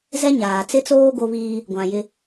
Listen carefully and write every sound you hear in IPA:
z ɛ˦ ɲ aː˨ t͡s ɪ˦ t͡s oː˦ ɡ o˦ β iː˦ | ɡʷ ã˨ j ɪ˦

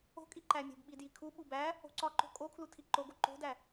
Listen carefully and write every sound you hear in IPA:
o̤ kʼ i ǃ æ mʲ o̤ b ɓ i d j i kʰ u ɓ u b æ | o̤ ǀ ɒ ǃ o̤ kʼ o kʰ l u tʰ i ǃ o ɡ o ǃ o̤ d æ

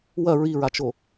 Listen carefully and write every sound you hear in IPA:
w ɐ ɹ i ɹ a t͡ʃ o

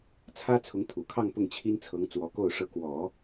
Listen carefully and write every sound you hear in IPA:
t͡sʰ ä˥ t͡sʰ ʊ˧˥ ŋ t̪ʰ u˨˩ kʰ ɑ˥˧ ŋ p ʊ˥˩ ŋ t͡ɕʰ i˥ n t͡sʰ ɤ˧˥ ŋ t͡s w ɔ˧˥ k o˥˩ ʊ̯ ʂ ɤ˧˥ k w ɔ˨˩˦

